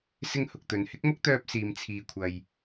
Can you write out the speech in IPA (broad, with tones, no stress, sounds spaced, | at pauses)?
s ɪ˥ ŋ h ʊ˨ k̚ t̪ ɵ˨ n h ɪ˥ k̚ m ʊ˥ k̚ t̪ œː˧ p̚ s iː˨ m t͡sʰ iː˨ kʷʰ ɐ˨ j